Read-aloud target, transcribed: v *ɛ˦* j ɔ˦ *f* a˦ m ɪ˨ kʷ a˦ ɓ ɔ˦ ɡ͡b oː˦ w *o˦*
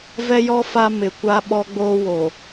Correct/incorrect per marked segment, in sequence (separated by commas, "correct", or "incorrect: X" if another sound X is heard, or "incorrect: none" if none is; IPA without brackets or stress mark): correct, correct, incorrect: o˨